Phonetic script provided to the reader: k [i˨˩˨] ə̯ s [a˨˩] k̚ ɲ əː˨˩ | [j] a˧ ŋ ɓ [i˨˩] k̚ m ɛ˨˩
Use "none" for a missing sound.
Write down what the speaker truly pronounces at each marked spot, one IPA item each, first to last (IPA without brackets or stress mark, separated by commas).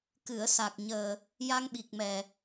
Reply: ɨ˨˩˨, a˨˩, j, i˨˩